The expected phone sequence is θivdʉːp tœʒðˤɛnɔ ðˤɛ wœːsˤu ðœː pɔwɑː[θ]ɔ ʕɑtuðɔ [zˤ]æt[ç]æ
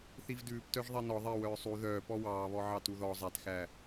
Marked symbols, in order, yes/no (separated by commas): no, yes, no